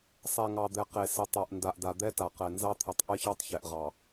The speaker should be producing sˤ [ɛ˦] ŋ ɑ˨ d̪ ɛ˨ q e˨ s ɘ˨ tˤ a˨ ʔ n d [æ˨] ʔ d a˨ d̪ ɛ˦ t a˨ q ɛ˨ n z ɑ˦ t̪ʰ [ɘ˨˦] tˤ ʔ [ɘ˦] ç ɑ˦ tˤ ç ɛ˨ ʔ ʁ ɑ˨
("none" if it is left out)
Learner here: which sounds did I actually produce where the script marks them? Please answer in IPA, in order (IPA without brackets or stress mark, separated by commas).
ɛ˨, a˨, ɘ˨˦, ɘ˦